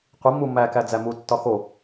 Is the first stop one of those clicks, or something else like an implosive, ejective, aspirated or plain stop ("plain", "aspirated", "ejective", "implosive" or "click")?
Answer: plain